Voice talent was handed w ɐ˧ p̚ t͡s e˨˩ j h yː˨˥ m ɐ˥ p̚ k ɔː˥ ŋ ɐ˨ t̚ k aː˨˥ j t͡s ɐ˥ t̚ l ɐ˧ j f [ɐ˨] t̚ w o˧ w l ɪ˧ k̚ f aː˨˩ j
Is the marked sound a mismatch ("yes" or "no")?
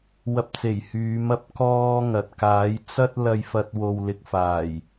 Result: yes